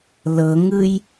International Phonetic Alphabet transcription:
l ɤ ŋ ɯ j

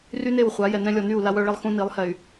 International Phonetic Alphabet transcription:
r y˦ n e˦˨ w χʷ a˨˦ j ɛ˨ n ɛ̃˦ lʲ ɔ˨ n y˦˨ u̯ l a˦ w œ˦ ɭ e˦ lˠ x ũ˦ n i˨˦ lˠ h ɛ˨ y̯

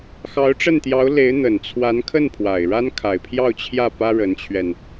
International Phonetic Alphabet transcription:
x ɑ˧˥ ʊ̯ ʈ͡ʂ ə˥˩ n t̪ j ɑ˧˥ ʊ̯ l e˧˥ ɪ̯ n̪ ə˨˩ n t͡sʰ w a˧˥ n kʰ ə˥˩ n pʰ w a˨˩ ɪ̯ ɻ a˥ n kʰ a˨˩ ɪ̯ pʰ j ɑ˥˧ ʊ̯ t͡ɕʰ j ä˥˩ p ä˥ ɻ ə˧˥ n t͡ɕʰ ɥ ɛ˧ n

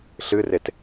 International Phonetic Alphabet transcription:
ɬ ɨ r e t

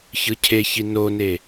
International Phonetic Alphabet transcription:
ç ɯ cʰ e ç i n o n e

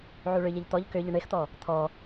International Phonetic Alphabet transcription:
ʕ u ɭ ʏ ʎ e ʎ t̪ ɔ ʎ k ʏ ʎ ə ɳ e x t̪ ɔ | t̪ʰ ɔ

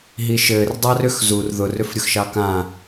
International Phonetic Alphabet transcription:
ɦ i ʃ ɘ r dˤ ɑ r ʏ x z u r ð ʊ r ʏ f ɾʲ ʊ x ʃ ɑ k ã

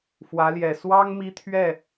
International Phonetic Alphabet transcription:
f w ä˧˥ l j ɛ˨˩ s w ɑ˥ ŋ m i˥ t̪ʰ ɥ ɛ˥˩

